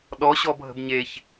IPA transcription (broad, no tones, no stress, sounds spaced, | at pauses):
ɗ ɔ ɕ ɔ bʱ ə̤ b ɲ e ç